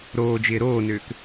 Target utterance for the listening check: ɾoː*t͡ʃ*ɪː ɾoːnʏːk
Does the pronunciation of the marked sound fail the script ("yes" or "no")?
yes